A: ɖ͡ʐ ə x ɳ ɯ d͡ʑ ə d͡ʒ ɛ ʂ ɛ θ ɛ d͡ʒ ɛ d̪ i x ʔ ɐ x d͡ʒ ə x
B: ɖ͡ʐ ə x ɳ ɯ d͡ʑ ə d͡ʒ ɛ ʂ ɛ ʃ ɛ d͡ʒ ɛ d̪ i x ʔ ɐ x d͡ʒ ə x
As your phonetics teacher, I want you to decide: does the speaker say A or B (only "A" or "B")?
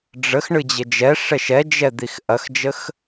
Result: B